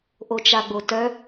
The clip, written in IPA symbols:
ʔot͡ʃaɡ͡botœ

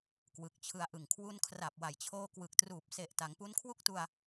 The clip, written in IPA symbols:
kwɯ˨˩k̚t͡ɕʰɯ˧a̯ʔɯ˨˩ŋ kʰwu˧nkʰra˨˩p̚wa˨˩jt͡ɕʰoː˧ kwɯ˨˩k̚truː˨˩p̚ se˨˩ʔta˩˦ŋ pu˦˥nkʰwu˥˩k̚tu˧a̯

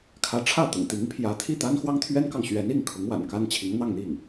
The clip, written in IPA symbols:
kʰä˧˥ʈ͡ʂʰä˥˩t̪ʊ̰˨˩ŋ t̪i˧˥ŋpʰjä˧˥t̪ʰi˥˩ t̪a˥nxwɑ˥ŋt̪ʰɥɛ˥nkɑ˨ŋ ɕɥɛ˧˥ni˥˩ŋkʰʊ˧˥ŋ wa̰˨˩nka˥nt͡ɕʰi˧˥ŋ n̪ɑ˥˧ŋn̪i˥˩ŋ

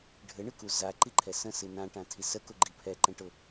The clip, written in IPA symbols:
ɖʱɘɳɨku zaǃiǃʰɛ sə̃sɨ nãʈãtʰi səkʊɡ͡ǃi pʰɛǃɛ̃ʈʊ

